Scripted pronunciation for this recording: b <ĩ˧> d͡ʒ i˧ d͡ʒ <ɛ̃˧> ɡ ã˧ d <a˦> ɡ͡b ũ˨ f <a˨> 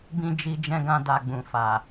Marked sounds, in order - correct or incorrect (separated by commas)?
correct, correct, incorrect, correct